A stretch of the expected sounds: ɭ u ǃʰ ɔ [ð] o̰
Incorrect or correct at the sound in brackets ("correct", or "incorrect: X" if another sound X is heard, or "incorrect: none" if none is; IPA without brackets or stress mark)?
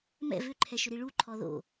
correct